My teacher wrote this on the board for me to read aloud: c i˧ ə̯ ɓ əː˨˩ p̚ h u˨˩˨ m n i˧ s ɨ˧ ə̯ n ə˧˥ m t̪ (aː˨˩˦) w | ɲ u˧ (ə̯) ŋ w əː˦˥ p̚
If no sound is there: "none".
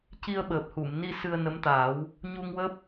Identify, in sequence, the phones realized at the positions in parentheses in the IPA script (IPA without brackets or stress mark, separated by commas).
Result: aː˨˩˦, none